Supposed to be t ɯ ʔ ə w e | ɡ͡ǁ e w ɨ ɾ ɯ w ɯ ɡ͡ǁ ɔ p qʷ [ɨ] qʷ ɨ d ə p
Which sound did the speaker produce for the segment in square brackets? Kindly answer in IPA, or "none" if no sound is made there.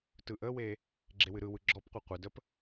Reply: ɨ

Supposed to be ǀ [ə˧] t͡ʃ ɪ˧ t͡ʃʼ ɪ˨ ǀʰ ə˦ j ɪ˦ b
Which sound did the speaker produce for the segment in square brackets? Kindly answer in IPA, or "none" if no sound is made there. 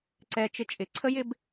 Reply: ɛ˧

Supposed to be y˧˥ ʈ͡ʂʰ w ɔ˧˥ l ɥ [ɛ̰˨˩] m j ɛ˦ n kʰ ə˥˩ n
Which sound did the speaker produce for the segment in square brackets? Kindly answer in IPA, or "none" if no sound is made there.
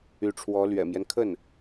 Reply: ɛ̰˨˩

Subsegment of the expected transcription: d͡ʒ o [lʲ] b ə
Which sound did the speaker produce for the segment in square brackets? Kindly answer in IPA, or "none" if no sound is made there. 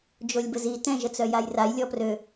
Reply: lʲ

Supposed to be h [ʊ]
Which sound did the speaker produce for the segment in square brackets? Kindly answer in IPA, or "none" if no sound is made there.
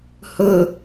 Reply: ʊ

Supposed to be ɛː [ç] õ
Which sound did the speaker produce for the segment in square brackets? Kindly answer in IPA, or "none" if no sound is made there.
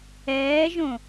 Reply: ʒ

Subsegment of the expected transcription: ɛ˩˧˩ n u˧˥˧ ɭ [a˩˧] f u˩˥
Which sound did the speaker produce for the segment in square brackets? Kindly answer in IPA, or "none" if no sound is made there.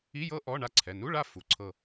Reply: a˦˨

